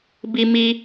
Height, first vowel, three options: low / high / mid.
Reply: high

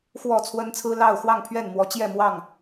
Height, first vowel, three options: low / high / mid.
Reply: mid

